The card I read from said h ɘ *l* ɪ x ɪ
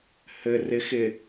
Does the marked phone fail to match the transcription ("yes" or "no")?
yes